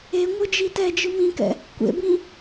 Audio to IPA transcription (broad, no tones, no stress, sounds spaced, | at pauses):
e ŋʷ ɯ d͡ʒ i t ɛ d͡ʒ ɯ m ĩ k ɛ̰ | kʷ ḛ b ĩ